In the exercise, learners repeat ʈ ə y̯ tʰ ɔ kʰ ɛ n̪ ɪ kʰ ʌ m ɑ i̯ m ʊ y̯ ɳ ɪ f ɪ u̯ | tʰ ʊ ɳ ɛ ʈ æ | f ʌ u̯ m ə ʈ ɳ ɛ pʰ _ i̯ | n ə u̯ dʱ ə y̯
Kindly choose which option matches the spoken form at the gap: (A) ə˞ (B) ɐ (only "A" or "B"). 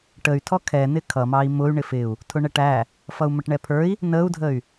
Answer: A